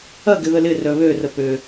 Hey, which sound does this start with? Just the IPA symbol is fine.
ɐ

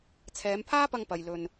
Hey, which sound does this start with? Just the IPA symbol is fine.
t͡sʰ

